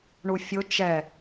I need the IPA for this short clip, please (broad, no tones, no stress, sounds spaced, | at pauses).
ɳ u fʲ ʊ t͡ʃ ɛ